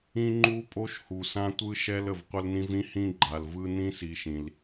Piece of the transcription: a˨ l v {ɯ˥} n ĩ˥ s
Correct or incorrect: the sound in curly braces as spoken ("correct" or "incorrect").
incorrect